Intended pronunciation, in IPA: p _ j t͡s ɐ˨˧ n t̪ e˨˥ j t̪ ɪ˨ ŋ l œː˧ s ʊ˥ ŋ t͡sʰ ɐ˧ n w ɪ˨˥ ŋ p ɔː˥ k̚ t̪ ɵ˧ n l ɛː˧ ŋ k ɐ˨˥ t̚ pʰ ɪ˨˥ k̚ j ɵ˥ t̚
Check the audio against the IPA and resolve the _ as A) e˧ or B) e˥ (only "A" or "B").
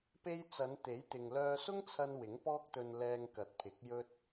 A